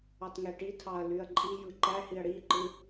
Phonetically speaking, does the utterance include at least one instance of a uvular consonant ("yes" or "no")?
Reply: no